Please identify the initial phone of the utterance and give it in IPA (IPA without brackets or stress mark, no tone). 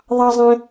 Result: ðˤ